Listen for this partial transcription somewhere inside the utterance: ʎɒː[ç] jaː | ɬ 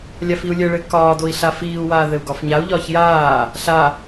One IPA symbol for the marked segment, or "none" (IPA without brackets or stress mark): ç